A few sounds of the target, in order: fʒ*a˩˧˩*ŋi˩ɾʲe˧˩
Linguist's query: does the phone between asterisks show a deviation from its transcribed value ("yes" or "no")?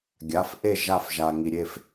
yes